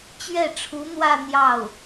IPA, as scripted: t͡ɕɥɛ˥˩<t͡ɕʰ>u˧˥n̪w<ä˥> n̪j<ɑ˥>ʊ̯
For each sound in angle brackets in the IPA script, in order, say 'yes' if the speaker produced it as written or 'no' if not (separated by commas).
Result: no, no, no